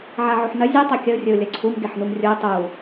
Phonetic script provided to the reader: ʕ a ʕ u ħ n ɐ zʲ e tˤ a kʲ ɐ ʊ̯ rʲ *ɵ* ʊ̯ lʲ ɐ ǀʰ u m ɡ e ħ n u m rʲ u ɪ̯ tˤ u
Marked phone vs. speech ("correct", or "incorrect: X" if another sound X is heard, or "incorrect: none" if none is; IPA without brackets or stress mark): correct